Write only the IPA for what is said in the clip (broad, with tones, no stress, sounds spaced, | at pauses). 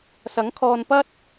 s ɐ˨˥ ŋ kʰ ɔː˧ n p ɐ˥ t̚